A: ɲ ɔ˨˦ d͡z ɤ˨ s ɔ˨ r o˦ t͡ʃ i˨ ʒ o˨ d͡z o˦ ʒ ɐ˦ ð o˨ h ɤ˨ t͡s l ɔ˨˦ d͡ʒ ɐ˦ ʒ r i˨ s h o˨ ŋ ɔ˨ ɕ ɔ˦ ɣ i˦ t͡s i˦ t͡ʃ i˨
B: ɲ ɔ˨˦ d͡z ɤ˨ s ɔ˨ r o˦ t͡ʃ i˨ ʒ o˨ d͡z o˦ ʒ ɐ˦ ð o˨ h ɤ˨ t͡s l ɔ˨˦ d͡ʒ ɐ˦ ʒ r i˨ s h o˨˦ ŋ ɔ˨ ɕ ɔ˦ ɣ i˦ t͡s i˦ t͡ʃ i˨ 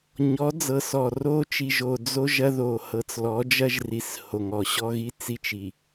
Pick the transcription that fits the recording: A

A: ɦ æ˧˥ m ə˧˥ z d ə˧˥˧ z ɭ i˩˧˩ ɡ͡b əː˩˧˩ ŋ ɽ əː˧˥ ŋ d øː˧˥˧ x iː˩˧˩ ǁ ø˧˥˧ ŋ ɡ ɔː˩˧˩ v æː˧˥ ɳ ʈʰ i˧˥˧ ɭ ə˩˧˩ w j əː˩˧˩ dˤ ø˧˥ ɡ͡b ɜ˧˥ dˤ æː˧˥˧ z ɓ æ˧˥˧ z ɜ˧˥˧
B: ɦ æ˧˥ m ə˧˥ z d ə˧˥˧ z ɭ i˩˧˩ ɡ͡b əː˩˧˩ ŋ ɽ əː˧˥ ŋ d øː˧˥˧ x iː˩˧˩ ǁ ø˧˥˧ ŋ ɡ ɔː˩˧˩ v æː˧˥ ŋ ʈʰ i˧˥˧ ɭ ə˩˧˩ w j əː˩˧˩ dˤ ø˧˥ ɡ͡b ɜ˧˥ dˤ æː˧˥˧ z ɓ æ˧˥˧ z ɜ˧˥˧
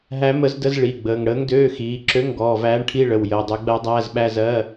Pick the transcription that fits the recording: A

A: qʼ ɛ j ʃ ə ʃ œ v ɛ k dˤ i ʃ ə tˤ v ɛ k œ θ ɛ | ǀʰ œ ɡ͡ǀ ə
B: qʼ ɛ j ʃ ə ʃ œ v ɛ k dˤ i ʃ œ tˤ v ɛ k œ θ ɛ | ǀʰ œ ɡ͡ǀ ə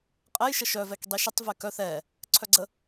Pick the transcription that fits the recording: A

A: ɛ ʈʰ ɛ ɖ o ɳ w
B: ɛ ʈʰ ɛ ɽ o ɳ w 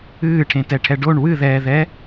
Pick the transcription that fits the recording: A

